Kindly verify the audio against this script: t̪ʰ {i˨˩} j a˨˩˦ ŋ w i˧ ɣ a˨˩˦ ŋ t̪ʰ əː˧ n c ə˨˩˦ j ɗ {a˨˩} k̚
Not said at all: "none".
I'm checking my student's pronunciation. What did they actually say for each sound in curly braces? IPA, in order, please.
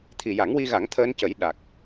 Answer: i˨˩, a˨˩

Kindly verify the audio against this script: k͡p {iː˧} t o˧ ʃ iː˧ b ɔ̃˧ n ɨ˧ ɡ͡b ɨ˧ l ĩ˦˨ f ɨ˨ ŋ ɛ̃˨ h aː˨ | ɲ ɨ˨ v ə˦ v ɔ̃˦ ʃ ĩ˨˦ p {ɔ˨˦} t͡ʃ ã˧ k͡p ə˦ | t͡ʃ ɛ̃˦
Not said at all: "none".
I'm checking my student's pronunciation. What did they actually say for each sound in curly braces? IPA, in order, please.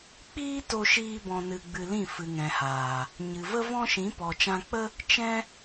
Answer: iː˦, ɔ˨

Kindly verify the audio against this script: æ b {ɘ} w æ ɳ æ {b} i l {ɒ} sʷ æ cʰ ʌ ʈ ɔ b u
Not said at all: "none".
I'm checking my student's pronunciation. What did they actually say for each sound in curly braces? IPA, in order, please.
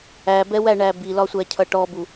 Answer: ɛ, b, ɒ

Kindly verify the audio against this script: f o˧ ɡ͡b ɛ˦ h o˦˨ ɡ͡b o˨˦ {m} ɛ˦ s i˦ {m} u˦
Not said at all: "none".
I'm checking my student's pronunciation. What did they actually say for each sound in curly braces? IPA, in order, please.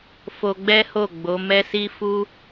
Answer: m, f

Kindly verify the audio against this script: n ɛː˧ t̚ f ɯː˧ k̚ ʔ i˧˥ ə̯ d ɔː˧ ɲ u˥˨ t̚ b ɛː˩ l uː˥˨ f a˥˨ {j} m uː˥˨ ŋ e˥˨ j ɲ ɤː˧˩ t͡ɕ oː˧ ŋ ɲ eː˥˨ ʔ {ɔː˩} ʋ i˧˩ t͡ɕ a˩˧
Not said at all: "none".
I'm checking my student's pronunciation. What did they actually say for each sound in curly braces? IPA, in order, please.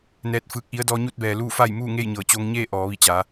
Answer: j, ɔː˩˧

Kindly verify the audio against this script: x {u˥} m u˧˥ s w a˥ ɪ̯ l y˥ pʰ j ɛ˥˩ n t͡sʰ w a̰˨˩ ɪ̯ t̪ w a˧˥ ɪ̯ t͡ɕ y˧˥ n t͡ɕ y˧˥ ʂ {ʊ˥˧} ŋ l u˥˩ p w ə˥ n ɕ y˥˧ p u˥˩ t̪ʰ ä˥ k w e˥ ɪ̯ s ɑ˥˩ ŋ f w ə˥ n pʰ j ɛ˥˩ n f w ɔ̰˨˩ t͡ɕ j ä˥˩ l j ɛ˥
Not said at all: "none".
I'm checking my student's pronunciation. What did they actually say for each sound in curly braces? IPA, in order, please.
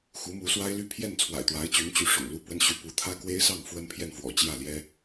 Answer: u˧˥, ʊ̰˨˩

